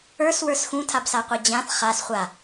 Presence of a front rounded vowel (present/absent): absent